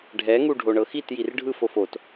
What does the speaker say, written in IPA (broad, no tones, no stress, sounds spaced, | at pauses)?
ɖʱ ɛ ŋ u ɖʱ o ɳ ɤ x i t j i r ɖʱ ɯ f o f o t